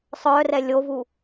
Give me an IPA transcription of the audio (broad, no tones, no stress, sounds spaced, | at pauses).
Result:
sˤ œ r ɛ lʲ o v u